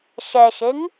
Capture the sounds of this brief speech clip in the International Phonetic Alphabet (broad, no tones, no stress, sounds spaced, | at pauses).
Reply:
ʃ ɛ ʃ e ŋ